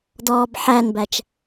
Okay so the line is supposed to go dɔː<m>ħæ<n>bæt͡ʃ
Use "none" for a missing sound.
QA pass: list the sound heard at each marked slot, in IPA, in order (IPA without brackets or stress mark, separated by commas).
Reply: b, n